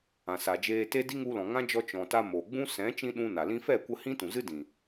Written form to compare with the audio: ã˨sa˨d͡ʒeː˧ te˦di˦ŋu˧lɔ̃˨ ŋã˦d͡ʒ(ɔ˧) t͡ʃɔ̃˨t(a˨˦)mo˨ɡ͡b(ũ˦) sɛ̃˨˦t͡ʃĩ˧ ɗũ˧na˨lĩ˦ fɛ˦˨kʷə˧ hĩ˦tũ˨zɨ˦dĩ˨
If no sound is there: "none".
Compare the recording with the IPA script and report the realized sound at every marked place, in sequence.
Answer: ɔ˧, a˧, ũ˦

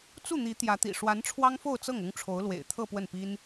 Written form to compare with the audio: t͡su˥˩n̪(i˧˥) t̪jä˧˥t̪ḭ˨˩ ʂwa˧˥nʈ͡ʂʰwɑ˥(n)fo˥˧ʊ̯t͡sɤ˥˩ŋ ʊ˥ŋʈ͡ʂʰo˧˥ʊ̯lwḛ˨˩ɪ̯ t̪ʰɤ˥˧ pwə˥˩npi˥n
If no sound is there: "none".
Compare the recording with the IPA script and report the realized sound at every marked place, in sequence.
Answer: i˧˥, ŋ

